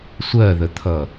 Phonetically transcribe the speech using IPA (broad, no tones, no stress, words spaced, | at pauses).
sʷɜðət̪ʰʌ